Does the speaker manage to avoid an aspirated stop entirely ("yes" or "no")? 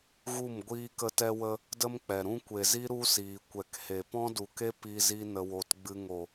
yes